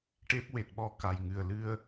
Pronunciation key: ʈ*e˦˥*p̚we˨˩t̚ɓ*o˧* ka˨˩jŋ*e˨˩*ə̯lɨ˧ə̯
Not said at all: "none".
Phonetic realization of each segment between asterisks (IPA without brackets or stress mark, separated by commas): e˦˥, ɔ˧, ɨ˨˩